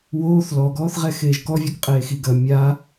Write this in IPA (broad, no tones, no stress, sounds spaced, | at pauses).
w oː θ l ɔ ɡ ɔː θ ʁ ɛ x eː ʒ k ɔ vʲ ɔ k qʼ eː x i ɡ ɐ mʲ a